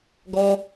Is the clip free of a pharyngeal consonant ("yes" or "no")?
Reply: yes